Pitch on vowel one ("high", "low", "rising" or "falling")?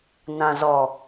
low